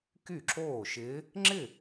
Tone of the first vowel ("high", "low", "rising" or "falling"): falling